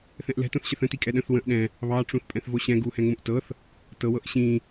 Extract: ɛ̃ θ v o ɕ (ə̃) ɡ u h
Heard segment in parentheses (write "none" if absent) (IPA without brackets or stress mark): ɛ̃